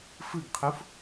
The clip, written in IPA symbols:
f ɯ ɡ qʰ u f

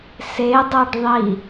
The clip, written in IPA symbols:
s e dˤ a ɖ ðˤ i

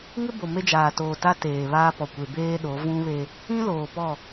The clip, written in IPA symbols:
ŋ ɪ˦ b o˨ m e˦ d͡ʒ aː˨ t oː˨ t a˦ t eː˨ β aː˦ p ɔ˨ kʷ e˨ b eː˦ ɗ o˨˦ v ũ˦ β e˦ | ĩ˦ l oː˨ p ɔ˦˨

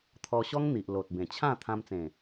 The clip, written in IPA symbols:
t̪ʰ ɔ˧ ɕ ɔ˦ ŋ n̪ i˨ ʔ l o˨ t̚ b ẽ˨˩ t͡ɕʰ ã˥˧ t̪ʰ ã˧ m t͡s ẽ˨˩

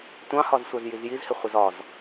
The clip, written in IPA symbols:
tʷ ɑ̃ h ɒ z sʷ æ z j i z j i z h ɪ χʷ ɪ z ɒ z

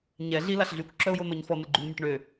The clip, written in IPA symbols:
ɲ ɛ ɮ i l a ɬ ɮ y kʷ ǁ œ ʊ̯ j o n̪ ɔ ɲ f ɔ n̪ ə ɡ͡ǃ y n mʲ ə ʈ ɳ ø

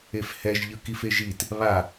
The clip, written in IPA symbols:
e f h ɛ ʒ ʎ ɯ k i f e ʒ i t | β a

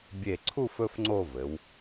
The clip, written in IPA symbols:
bʲ e˧˩ ǀʰ u˥˧ f ɵ˥ f ŋ͡ǀ o˥˧ v ɘ˩˧ w

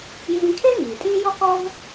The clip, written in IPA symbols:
j ĩː˧ kʰ e˥ ŋ iː˩ tʼ ĩː˥ j ɔ˥ k ɔ˥ v

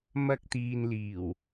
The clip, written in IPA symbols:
m ɐ˧ k̚ t̪ iː˨ n l iː˨˩ w

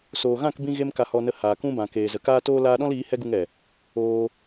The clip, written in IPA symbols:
s oː˨ ɣ ã˦˨ k b ĩ˦ ɣ e˦ m k a˧ h ɔ˧ n ə˧ h aː˨ k ũ˦ b ã˨ k eː˨ z ə˨ k aː˦ t oː˦ l aː˦ ɗ ɔ̃˦ l iː˨˦ h ɛ˦ ɡ u˧ ŋ ɛ˨ | oː˧

